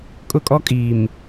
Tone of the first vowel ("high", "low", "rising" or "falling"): high